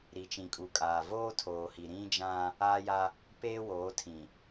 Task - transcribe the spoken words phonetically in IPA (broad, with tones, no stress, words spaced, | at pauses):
ɾi˨t͡ʃĩ˨kʼu˨kʼaː˨ voː˦tʰoː˨hi˨ ɾĩ˦d͡ʒã˦ | aː˦ja˦ | peː˦woː˨˦tʰĩ˨